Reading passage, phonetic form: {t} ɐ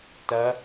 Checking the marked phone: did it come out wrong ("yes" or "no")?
no